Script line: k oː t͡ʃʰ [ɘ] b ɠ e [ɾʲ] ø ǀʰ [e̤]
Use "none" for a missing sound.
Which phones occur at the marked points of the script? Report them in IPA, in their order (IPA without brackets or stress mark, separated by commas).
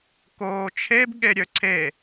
e, ɾʲ, e